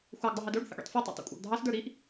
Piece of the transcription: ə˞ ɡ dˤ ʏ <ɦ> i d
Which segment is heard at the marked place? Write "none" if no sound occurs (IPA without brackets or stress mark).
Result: ɦ